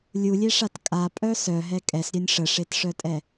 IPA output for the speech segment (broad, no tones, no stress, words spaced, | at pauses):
lʲulʲeʂat kʼapʼœ sœɦɛ kʼɛsɾʲœnʲ ʂəʂetʂœtʼɛ